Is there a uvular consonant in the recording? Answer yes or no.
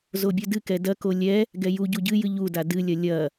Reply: no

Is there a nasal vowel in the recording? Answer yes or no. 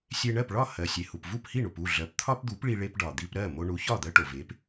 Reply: no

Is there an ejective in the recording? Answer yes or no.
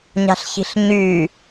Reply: no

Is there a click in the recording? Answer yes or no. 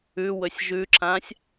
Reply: yes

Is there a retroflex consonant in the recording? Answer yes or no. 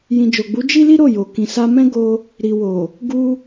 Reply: no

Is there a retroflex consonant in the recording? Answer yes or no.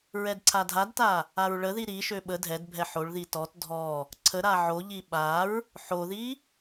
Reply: yes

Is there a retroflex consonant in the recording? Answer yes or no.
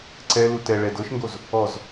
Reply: yes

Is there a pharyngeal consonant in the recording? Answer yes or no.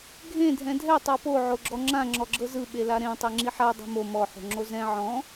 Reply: yes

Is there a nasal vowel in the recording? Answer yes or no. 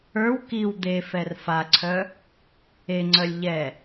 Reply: no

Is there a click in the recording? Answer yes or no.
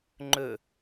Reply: yes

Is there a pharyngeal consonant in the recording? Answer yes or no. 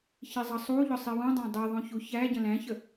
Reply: no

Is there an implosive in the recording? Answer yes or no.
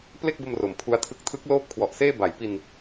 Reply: no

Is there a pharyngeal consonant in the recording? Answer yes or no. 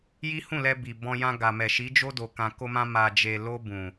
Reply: no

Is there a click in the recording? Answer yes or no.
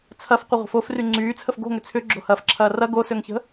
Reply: yes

